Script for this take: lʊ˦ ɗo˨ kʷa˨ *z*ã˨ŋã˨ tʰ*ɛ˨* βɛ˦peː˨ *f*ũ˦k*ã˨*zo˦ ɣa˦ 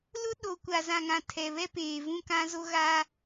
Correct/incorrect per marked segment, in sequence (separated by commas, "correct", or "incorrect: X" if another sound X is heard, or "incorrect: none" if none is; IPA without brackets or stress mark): correct, correct, incorrect: v, incorrect: ã˦